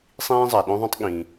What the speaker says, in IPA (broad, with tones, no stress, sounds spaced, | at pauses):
sˤ ĩː˥ zˤ a˩ ɗ õ˥ ðˤ õ˥ tˤ ɠ ĩ˩